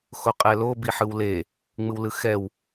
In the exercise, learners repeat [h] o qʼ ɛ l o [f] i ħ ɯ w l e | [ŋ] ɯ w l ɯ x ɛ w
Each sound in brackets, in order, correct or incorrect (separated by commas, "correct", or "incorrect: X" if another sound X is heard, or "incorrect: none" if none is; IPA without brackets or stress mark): incorrect: x, incorrect: b, incorrect: ŋ͡m